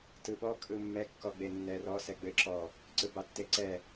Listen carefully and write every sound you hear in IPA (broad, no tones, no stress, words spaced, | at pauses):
tɯɓɔ kʼɯmːɛ kːɔɡ͡benːɛrɔ sɛɡ͡bɘ ǁɔ | ǀɯbɑtːeǀɛ